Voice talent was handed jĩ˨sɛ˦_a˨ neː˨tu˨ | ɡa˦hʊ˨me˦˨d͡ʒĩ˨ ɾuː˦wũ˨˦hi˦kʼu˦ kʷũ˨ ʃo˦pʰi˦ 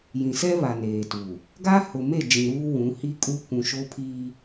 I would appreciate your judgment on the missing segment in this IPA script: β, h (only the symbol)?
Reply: β